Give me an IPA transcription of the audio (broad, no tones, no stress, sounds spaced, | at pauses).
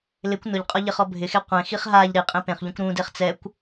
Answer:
l ɪ kʷ n ʊ ʎ qʼ ɔ ʎ ɪ χ ɔ bʱ ɪ x e qʷ ẽ x i χ ɦ a ʎ ɾ i qʼ ẽ p ẽ χ ʎ ũ kʷ ɾ ũ d e χ t͡s ɛ kʷ